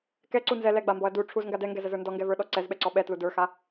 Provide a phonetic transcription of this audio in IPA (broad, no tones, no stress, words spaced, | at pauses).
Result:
kɛǀu nzɛ lɛɡ͡bambɔɐ̯ du ʈ͡ʂʰuzŋɡa dɛŋɡɛzəzə˞ ndɔŋɡɛvə˞ɗɔ ǀɛzɓɛǀɔ ɓɛtlu də˞xa